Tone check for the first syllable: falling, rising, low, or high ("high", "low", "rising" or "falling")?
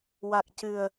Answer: low